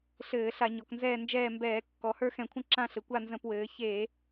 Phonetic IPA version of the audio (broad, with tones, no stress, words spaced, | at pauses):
ɬɘː˧˩˧ɬa˧˩˧ ɲɔ˩˧knzɛː˦˨nd͡ʒɛː˦˨mbɛː˧˩˧ kːɔ˩˧hə˞˦˨xɛ̃˧˩˧kʷʰə̃˦˨ ǁã˦˨ɬɘ˩˧kʷa˦˨ nzə̃˧˩˧pwɘː˩˧ çe˧˩˧